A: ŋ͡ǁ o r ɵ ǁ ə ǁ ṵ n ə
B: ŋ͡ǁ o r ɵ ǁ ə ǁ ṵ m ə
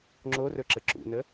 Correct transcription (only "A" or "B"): A